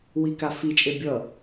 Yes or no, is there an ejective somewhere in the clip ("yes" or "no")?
yes